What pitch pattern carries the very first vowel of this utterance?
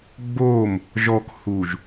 falling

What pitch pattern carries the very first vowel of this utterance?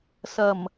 low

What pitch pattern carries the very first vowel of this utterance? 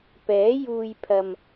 rising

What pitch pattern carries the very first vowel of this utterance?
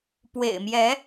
low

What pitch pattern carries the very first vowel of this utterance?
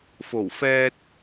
low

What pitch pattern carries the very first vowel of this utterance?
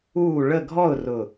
falling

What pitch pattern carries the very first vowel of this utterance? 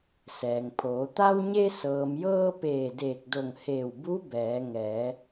low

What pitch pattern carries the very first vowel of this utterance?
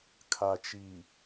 low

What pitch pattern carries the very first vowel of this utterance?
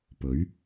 rising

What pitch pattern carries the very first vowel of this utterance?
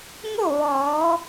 falling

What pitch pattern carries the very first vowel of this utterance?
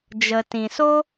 low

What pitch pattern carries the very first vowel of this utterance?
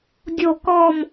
falling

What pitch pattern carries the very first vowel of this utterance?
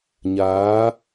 rising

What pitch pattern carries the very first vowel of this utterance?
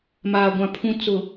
low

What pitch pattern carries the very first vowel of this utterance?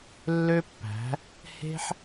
high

